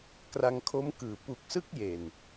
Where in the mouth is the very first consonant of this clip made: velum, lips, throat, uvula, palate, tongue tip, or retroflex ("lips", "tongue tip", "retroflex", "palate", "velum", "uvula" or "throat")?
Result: velum